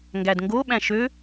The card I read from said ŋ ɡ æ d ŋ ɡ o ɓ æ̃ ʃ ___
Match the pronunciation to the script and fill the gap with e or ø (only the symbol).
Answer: ø